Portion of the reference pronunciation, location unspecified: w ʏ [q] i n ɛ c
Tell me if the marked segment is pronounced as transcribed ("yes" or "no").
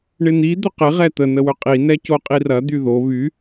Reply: no